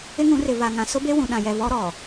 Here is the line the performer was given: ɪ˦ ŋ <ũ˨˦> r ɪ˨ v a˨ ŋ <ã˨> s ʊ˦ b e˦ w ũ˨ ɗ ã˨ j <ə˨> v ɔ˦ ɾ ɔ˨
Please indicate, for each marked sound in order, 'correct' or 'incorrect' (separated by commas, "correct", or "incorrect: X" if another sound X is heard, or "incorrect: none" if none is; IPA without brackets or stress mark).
correct, correct, incorrect: ɛ˨